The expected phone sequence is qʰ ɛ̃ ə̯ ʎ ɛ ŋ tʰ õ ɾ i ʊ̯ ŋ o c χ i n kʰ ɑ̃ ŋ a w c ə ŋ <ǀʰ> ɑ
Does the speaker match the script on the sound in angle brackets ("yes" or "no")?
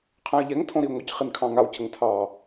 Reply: no